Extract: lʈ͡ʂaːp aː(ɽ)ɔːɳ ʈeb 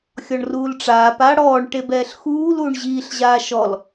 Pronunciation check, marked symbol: correct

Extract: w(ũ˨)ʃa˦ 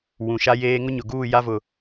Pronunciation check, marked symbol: correct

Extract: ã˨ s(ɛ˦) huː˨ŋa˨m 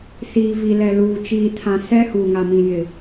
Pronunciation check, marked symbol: correct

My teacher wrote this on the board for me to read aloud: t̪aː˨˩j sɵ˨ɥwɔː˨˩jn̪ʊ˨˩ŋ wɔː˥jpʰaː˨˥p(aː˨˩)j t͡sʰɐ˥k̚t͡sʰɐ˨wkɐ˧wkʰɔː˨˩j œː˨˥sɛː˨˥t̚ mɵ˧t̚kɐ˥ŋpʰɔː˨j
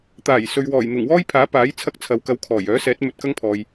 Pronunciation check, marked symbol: incorrect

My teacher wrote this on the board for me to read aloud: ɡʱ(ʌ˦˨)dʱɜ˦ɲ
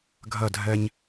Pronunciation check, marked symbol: correct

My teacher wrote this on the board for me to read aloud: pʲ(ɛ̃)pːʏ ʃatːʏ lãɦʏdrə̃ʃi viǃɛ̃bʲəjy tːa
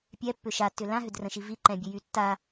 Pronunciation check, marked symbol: incorrect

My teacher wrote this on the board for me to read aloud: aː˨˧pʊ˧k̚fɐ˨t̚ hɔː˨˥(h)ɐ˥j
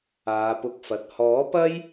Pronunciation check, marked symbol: incorrect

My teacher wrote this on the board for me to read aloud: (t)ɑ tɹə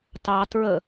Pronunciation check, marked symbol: correct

